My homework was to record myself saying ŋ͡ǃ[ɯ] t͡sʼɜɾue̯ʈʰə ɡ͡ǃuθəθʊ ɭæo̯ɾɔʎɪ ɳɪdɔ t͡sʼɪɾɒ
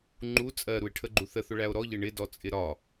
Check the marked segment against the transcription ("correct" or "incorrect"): incorrect